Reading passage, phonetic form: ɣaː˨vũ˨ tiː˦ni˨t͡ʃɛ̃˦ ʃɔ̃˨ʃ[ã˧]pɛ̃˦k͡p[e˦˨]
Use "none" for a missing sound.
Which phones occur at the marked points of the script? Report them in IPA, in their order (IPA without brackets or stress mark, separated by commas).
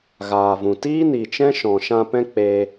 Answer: ã˧, e˧